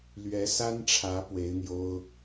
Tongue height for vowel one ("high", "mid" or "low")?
mid